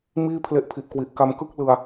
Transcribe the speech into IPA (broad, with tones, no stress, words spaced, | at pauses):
miː˥˩pʰle˦˥ʔpʰi˨˩ʔkwi˨˩ʔ ka˧mkɯ˥˩k̚ lɯ˧a̯